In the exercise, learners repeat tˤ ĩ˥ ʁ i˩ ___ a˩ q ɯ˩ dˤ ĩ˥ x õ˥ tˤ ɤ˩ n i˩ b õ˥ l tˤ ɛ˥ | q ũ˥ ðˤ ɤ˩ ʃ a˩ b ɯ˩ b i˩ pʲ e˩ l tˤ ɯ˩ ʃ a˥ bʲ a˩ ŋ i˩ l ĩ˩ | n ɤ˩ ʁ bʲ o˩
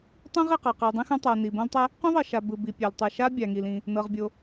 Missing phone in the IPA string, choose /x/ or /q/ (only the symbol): q